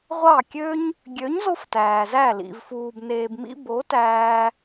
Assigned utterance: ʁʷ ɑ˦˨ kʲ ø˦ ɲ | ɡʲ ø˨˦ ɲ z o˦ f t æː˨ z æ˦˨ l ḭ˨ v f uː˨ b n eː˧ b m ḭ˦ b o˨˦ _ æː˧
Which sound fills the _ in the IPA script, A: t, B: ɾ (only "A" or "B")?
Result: A